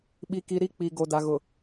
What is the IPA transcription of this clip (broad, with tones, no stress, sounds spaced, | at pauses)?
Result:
ɓ i˨ k i˨ ɾ i˦ k͡p i˨ ɡ o˨ d a˨ ɣ ʊ˨